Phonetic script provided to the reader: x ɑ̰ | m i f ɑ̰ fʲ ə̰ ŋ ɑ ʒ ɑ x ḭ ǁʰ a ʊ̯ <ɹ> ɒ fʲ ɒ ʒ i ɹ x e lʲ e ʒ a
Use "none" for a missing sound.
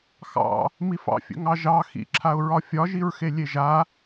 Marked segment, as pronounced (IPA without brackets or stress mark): ɹ